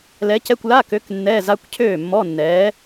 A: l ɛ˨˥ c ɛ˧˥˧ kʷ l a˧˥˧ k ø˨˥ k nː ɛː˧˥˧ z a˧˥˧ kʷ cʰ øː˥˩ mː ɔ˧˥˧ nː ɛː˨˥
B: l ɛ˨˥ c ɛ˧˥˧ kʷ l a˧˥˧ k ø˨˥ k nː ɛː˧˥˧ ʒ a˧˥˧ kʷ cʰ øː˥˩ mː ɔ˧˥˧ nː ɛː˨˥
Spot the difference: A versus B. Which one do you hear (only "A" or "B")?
A